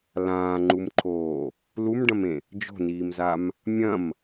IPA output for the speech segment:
l ãː ŋ͡ǃ u m ǃʰ oː | l u m ɖ ɐ̃ m ẽ | d͡ʒ o̤ n iː m z a m | mʲ ɐ̃ m

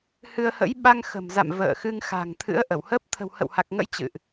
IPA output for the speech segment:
h ɨ˧ ə̯ h ə̰˧˥ j ɓ a˧ ŋ x ə̤˨˩ m z a̰˧˨ m v ə̰ː˧˨ x ɨ˧ ŋ x a̤˨˩ ŋ t̪ʰ ɨ̰˧˥ ə̯ ʔ ə˧˩ w h əː˦˥ p̚ t̪ʰ ə̤˨˩ w h ə̰˧˨ w h a˨˩ k̚ ŋ ə̰˧˥ j t͡ɕ ɨ̰˧˨ ʔ

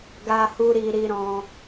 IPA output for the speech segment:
ɡ a˧ h u˧ ɾ i˧ ɾ i˧ ɾ ɔ̃˧

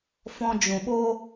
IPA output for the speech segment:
f ɔ̃˧ d͡ʒ ũ˨ ɓ oː˦

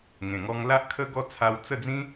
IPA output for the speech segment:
ŋ ẽ˨˩ ŋ ɔ˧ ŋ l a˦ ʔ kʰ ə˦ ɡ ɔ˥˧ t͡sʰ a˧ w t͡s ə˥˧ d͡z ĩ˦

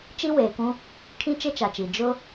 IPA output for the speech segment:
t͡ʃ i˦ w eː˨ k ũ˦ | kʰ ĩ˦ t͡ʃ e˦ t͡ʃ a˨ t͡ʃ i˨ d͡ʒ ʊ˦

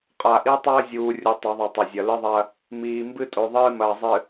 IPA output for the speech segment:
qʼ a˨ ʔ i˦ tˤ ɐː˦ zʲ uː˨ rʲ u˨ tˤ ɵ˨˦ ðˤ u˨ tˤ ɐ˨ zʲ ɐ˨ l ɨ˦ ðˤ ɐ˦ | m iː˨ m b ɨ˦ tʼ o˨ ðˤ ɨː˦ m ɐː˨ zˤ ɨ˨

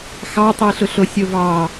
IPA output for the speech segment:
x ɑ tˤ i ɬ ʊ ɬ o sʲ o v ɑ

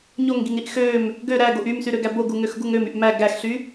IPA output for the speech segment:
ɲ o ŋ ɡ i ŋ ɾ i ʔ x ø m | ɡ ø ɾ æ ɡ o ʔ y m s y ɾ ø ɡ æ b o ɡ u ŋ ø x ɡ u ŋ ø m y ʔ m æ ɡ æ x ɬ y

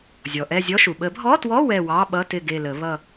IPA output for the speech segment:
zʲ ɔ˩ ʔ ɛ˦˨ zʲ ɔ˧˥˧ ʃ u˩ ɓ ə˨˩˦ bʱ ɔ˧˥˧ t w ɔ˧˥˧ w ɛ˦˨ w ɑ˧˥˧ ɓ ʌ˧˥˧ t ɪ˦˨ ɡ e˦˨ l ə˨˩˦ β ʌ˦˨

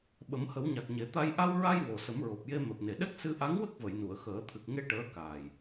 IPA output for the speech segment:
ɓ ə˨˩˦ m h ə˨˩˦ w ɲ a˨˩ k̚ ɲ e˨˩˦ t̪ a˧ j ʔ a˧ w ɹ a˧ j w o˨˩ s ə˨˩˦ m ɹ o˨˩ p̚ j e˧ m ɛ˨˩ p̚ n e˨˩ ɗ ɛ˦˥ k̚ s ɨ˧ ʔ a˧˥ ŋ w ə˦˥ k̚ v ə˨˩˨ j n u˨˩˨ ə̯ x əː˨˩˦ t̪ʰ ɨ˨˩ k̚ ŋ e˧ ʈ əː˧˥ k aː˨˩ j

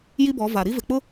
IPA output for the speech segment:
j i˦ b ɔ˨˦ v a˨ ɾ i˦ v ɪ˨ k͡p ʊ˦

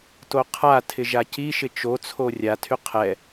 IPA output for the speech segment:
t o qʰ a tʰ ɪ ʒ a c i ʃ ɪ t͡ʃ o t͡sʰ o rʲ a tʰ y qʰ ɛ

